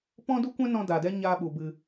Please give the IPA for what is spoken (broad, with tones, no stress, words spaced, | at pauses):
pɔ̃˦du˦kʷɛ̃˦ nɔ̃˧ daː˨dɛ˦ ɲaː˧ɓu˨ bɨ˧